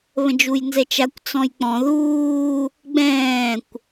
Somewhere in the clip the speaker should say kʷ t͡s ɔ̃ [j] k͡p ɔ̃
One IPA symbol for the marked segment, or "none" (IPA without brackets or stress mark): j